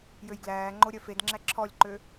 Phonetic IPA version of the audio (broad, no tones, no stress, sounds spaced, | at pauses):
j ø j ɡ l æː ŋ͡ǃ o ɾʲ œ f e d ŋ͡ǁ æ ǁʰ ɔ lʲ ǃ ø